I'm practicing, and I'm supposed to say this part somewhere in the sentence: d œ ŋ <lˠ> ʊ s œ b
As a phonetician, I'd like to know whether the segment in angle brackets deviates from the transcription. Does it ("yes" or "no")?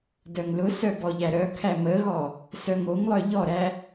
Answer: yes